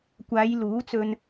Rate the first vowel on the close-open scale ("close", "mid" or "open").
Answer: open